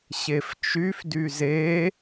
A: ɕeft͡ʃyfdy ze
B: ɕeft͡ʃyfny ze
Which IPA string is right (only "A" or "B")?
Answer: A